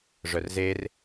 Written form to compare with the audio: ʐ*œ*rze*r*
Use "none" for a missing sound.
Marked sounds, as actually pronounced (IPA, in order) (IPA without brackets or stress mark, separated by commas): œ, r